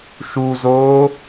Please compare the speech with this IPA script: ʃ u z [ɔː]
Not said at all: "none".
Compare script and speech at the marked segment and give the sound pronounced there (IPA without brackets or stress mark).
oː